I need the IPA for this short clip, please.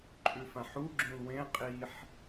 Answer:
ǃʼʉfãħuɡ͡ǁũl wẽ qʼiħ

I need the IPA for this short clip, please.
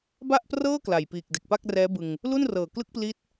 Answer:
ba˥˩ʔprɤː˥˩ kla˨˩jpiː˨˩k̚ de˨˩k̚pa˥˩k̚rɛː˦˥bɯ˧ŋ | lu˥˩nrɤː˨˩klɯ˥˩k̚ pli˦˥t̚

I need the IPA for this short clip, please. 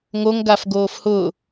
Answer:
ŋoŋɡaf ɡoːfhʊː

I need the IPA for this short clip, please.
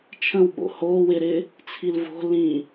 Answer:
t͡ʃʰə̃wɓo̰ hoː wɪɾɪː | t͡sʰilvo̤ lĩ

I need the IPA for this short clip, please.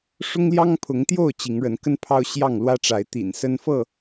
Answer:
ʂʊ˦ŋljɑ˦ŋpʰʊ˨˦ŋt̪jo˥˨ʊ̯ t͡ɕi˨˦ŋɻə˨˦nkə˦n pʰɑ˦ʊ̯ ɕjɑ˥˨ŋlwä˦ʈ͡ʂa˨˦ɪ̯ t̪ḭ˨˩n sə˦n fɤ˥˨

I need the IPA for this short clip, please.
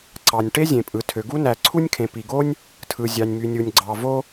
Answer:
ǀɑ˩nʲ ʈe˥zʲẽ˩pʼɯ˩tʰø˩ ɡu˥næ˩ ǀʰu˥nʲkʰẽ˩ pi˩ɡo˥nʲ | tʰɯ˩zʲɑ˩nʲmy˩nʲu˩nʲ ɡ͡ǀɑ˩ vo˥

